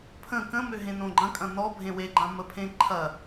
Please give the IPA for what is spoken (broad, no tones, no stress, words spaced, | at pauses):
pʰə̃ kə̃mø ɦẽnõɡ͡ǃɐ̃kʼɐ̃ nɔ bʱẽweɡ͡ǃã məpʰẽ ǃʰɐ